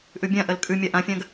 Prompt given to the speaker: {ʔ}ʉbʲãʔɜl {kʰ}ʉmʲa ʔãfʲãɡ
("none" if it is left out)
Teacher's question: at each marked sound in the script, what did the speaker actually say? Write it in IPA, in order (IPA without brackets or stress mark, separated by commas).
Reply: ʔ, kʼ